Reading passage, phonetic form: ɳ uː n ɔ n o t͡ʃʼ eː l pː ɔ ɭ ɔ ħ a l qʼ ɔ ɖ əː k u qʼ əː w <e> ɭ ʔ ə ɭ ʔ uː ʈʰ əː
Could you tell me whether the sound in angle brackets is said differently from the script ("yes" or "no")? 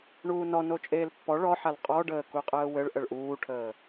yes